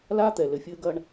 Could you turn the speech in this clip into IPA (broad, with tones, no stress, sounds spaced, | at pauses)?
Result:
l aː˦ t̪ ɛ˨ l ɘ˨ fʲ ɘː˦ ɡ ɐ˦ ɳ